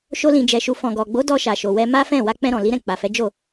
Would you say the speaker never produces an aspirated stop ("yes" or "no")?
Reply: yes